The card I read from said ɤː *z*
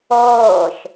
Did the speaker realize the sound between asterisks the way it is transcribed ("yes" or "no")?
no